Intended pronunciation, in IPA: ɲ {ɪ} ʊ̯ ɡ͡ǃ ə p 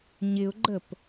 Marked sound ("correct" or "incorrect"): correct